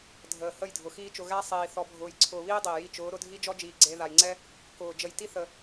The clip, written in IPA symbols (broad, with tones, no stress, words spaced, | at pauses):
dʱəː˨hə˦˨j dʱʊ˨xiː˦t͡ʃʊ˧ ɣæ˦sˤiː˨ θɔ˨bʱʊː˨jǀʰʊː˨βiː˦ dˤiː˨ji˦˨ t͡ʃʊː˨˦ ɾʊ˧dʱi˦d͡ʒɔ˦d͡ʒiː˨ ɡ͡ǀe˧ ða˨jŋ͡ǀɛ˦ | kʊː˨ d͡ʒə˨j ti˦ θə˨